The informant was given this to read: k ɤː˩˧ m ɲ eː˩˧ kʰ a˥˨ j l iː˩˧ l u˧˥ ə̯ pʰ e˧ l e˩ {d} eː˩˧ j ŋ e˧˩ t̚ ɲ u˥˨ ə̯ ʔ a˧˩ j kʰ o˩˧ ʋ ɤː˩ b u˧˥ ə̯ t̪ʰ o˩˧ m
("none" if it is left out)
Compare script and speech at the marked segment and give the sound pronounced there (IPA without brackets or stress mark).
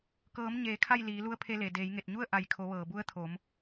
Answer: d